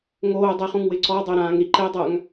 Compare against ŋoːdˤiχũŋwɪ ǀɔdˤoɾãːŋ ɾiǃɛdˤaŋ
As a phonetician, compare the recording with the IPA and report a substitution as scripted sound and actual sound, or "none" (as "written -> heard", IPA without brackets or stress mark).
none